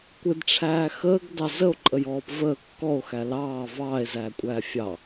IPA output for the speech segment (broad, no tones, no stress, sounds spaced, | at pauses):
kʷ ɪ d ʈ͡ʂʰ æː x əː ɡ d ɑ z ə o̯ ǃʼ ə j ɔː p v əː kː ɔ o̯ x æ l ɑː v ɑː e̯ z æː kʷʼ æː fʲ ɑ